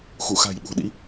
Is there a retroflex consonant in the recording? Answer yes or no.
no